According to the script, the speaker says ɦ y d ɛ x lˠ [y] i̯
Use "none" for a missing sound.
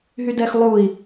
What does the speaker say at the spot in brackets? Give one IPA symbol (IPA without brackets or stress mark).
u